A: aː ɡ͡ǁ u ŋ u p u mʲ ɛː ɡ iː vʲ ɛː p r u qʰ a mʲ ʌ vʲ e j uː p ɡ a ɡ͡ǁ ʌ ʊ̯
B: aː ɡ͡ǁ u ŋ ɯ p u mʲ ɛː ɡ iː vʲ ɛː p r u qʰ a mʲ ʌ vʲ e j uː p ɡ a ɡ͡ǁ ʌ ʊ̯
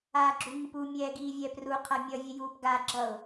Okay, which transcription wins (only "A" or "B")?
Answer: B